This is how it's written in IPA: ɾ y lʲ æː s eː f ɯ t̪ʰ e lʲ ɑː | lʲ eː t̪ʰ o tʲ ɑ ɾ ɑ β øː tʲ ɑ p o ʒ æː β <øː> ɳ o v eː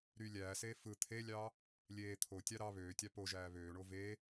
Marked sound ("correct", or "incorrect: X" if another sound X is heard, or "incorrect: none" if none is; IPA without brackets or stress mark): correct